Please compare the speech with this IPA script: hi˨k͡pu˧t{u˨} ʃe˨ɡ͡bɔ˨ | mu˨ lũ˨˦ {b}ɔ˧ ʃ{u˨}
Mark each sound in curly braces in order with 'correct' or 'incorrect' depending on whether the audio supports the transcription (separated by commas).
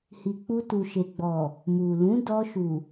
correct, incorrect, correct